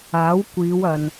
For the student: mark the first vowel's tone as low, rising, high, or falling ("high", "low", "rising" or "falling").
rising